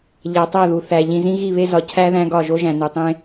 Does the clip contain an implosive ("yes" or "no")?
no